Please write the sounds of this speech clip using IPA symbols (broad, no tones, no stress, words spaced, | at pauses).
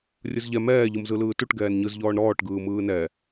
rʲɯzʎɛ mɛː ʎɯmzɯlɯːtuʈ ɡɛːnɲɯz ʎɔːɳɾɔːʈ ɡɯːmɯːnɛ